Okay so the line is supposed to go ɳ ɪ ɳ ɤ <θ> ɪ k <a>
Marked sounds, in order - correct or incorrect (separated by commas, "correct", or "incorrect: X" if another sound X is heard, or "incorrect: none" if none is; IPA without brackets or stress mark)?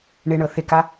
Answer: correct, correct